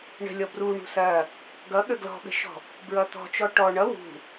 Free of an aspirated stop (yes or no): yes